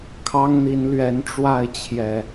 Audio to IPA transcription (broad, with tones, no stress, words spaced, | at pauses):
kʰɑ˦ŋn̪i˨˦nlɥɛ˨˦n ʈ͡ʂwa˥˨ɪ̯t͡ɕʰjɛ˨˩